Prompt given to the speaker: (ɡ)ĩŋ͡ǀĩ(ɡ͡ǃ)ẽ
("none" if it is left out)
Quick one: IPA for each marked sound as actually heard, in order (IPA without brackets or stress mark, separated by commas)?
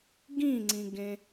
ɡ, ɡ